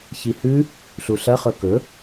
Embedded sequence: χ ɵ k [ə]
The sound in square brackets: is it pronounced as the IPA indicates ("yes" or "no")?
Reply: no